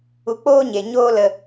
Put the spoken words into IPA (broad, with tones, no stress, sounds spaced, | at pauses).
u˧ k͡p oː˦ ɲ e˨ ɲ oː˦ l ə˧